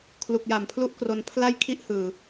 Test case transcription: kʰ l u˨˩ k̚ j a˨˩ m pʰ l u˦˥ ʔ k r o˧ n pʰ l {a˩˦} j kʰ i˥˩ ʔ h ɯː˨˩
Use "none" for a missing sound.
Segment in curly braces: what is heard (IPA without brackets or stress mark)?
a˥˩